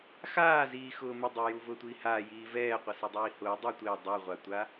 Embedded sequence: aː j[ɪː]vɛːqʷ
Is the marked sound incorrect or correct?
incorrect